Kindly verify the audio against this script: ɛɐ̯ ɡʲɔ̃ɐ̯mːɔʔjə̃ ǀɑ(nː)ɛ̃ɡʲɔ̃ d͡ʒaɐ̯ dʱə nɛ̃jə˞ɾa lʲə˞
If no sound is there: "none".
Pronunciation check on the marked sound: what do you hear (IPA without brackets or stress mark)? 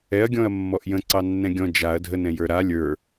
nː